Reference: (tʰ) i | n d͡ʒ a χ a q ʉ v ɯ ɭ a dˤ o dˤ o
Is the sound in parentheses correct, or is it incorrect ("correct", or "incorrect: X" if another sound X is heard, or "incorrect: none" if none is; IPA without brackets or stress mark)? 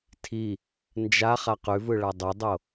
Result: correct